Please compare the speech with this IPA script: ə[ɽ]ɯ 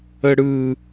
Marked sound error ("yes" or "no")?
no